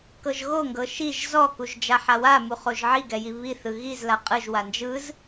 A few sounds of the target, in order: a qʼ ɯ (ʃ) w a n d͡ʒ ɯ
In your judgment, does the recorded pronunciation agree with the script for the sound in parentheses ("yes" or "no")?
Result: no